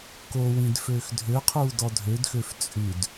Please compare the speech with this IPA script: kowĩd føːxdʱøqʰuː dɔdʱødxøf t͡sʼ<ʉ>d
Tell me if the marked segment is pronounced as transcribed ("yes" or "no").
yes